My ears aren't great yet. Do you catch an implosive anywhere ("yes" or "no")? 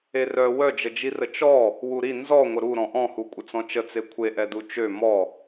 no